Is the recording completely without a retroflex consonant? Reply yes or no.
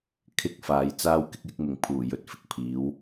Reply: yes